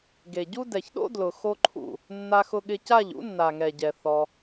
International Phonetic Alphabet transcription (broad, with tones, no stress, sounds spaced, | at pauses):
ɡ e˨ ɟ u˦ d ɛ˨ ç ɗ o̰˦ d l ʊ˨ x o˦ ǃʰ ṵ˦˨ | nː a˧ x ʊ˧ ɠ ɪ˧ c a˦˨ ʎ ṵ˦ nː a˨ ŋ ɛ˨ ɟ ɛ˨ θ ɔ˧